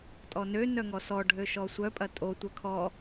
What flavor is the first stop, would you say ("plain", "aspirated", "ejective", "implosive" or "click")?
ejective